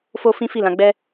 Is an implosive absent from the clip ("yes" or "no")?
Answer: yes